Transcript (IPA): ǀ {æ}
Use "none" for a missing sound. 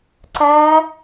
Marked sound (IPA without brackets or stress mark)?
æ